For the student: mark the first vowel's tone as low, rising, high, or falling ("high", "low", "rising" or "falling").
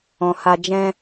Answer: low